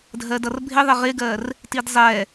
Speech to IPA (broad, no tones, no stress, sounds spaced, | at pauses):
dʱ ɜ d ʌ r bʱ ɪ ðˤ ɪ ʁ ɪ ɡ ɜ r | t i d zˤ ɛ